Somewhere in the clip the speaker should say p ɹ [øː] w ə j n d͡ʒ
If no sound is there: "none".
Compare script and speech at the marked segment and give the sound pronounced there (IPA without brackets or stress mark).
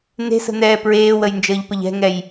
eː